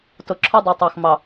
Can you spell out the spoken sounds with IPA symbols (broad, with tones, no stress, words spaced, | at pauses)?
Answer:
tʊ˨ǁʰɔ˦dˤɛ˨ tˤɑ˨xmɑ˨